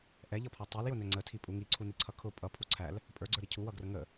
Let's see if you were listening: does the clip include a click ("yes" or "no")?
yes